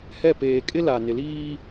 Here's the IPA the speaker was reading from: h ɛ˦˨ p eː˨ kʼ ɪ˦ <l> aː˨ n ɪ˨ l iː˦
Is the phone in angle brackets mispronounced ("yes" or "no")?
no